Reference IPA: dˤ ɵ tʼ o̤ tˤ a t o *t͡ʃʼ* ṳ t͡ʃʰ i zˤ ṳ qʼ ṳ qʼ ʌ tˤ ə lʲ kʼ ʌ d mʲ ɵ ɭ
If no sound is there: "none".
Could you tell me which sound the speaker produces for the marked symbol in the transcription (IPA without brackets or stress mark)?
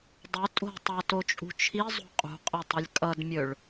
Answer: t͡ʃʼ